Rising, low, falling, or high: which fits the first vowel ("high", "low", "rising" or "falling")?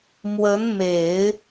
rising